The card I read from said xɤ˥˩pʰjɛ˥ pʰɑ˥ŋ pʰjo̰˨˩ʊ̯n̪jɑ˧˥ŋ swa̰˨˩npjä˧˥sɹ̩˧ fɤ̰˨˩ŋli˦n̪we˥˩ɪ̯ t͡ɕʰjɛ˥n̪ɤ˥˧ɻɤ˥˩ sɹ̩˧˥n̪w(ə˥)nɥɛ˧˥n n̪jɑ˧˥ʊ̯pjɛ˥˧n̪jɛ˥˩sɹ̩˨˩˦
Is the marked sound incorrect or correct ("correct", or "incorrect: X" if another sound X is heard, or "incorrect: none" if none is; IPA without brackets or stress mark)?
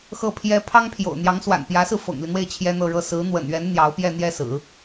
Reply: incorrect: ə̰˨˩